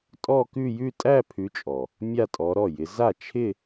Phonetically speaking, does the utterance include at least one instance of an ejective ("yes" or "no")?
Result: yes